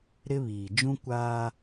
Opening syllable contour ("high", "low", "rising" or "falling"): high